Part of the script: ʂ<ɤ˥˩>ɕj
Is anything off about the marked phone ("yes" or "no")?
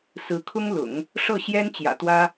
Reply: no